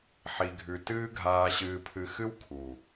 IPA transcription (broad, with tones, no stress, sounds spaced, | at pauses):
ħ i˨ ɡʱ ʉ˨ t ɨː˦ ɡʱ aː˨ ɕ ɨː˨ pʰ ɨ˨ x ɨ˦ w kʰ u˨